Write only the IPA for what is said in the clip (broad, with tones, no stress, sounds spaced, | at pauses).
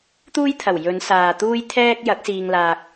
t̪ uː˥ j t̪ʰ ɐ˨˩ w j ɵ˨˧ n s aː˨ t̪ uː˥ j t̪ʰ ɛː˥ k̚ j ɐ˨˥ k̚ s iː˧ ŋ l aː˧ k̚